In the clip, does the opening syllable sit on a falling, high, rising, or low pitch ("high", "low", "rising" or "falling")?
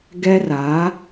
high